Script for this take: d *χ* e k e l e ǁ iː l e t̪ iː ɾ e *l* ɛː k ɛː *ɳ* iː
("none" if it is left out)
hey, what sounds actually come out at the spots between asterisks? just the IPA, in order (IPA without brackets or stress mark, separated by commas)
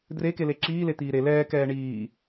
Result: r, l, ɳ